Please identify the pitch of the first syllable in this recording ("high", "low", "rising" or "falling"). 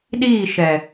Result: falling